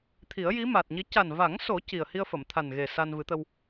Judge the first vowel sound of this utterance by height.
high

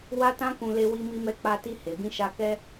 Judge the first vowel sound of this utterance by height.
low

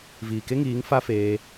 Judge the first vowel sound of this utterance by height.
high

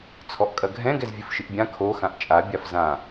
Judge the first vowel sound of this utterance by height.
mid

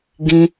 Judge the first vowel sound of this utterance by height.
high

